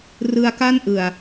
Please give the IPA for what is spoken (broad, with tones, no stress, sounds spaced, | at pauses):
r ɯ˧ a̯ k a˥˩ n ʔ ɯ˨˩ a̯